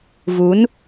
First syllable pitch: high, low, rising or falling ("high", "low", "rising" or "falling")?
rising